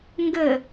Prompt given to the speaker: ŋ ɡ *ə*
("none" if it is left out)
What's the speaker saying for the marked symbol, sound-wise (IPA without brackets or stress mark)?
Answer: ə